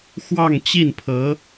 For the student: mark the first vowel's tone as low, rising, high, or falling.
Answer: falling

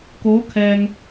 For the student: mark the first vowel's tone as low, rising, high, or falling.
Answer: rising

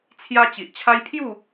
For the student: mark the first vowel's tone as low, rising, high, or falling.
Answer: high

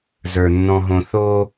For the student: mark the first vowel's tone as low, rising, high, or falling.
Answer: low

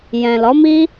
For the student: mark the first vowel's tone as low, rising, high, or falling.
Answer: low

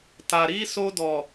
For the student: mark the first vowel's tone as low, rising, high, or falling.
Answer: low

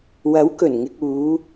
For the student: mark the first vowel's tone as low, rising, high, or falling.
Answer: rising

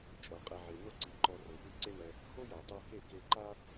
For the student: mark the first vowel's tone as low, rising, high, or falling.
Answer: low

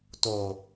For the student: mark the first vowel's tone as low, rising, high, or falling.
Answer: low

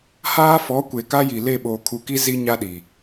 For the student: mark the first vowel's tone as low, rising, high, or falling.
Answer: high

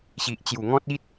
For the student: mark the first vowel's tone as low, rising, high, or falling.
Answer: low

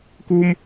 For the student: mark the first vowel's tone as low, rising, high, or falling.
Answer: high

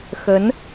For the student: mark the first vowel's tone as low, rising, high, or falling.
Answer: rising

